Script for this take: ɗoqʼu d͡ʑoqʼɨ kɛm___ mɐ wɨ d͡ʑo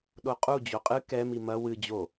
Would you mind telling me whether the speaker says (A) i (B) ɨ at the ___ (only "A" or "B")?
A